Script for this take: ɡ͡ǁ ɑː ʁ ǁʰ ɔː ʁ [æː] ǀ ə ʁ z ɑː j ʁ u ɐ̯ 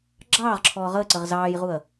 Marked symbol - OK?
no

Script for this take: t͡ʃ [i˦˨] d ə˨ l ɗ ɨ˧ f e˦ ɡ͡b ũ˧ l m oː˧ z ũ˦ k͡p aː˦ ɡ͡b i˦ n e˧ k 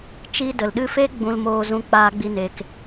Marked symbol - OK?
no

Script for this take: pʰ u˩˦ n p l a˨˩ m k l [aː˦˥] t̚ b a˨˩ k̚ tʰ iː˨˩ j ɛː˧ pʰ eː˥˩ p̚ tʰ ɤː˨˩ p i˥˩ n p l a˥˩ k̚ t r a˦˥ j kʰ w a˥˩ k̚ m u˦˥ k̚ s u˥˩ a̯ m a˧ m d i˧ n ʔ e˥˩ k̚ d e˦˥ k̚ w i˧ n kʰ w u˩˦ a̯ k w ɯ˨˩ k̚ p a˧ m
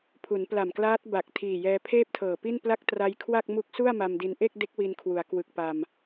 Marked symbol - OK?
yes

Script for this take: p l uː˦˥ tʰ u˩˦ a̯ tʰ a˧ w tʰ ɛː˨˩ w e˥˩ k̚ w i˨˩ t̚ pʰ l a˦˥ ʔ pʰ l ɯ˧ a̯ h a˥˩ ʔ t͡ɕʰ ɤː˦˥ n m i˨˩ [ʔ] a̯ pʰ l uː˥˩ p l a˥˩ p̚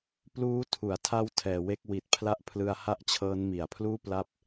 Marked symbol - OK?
no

